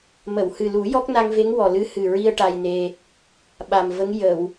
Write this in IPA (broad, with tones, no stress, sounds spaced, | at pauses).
m ə˨˩˨ w h ɨ˨˩ l u˨˩˦ j ɔ˦˥ k̚ n a˧ ŋ v e˧˥ ŋ w ɔ˨˩ l ɨ˧˥ h ɨ˨˩ ɹ i˧ ə̯ ʈ a˧ j n e˧ | ɓ a˨˩ m v ə˧˥ ŋ j ə˨˩˨ w